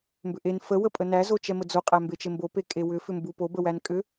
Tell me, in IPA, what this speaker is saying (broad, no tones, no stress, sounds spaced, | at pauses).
m b ʏ ʔ e n f ə w ə pʼ ə n æ z o t͡ʃ ɛ m ə d͡z o qʼ æ m b e t͡ʃ e m b o p e kʼ e w ʏ f ʏ m b u p o b ə w æ n kʼ ʏ